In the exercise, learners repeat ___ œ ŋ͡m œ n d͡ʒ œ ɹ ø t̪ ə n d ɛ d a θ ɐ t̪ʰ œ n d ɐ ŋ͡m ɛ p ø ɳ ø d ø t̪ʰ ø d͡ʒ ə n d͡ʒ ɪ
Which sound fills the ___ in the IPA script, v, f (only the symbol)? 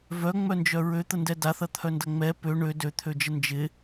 v